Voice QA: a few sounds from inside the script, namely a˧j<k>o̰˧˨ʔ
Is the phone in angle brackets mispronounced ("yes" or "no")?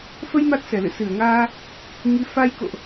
no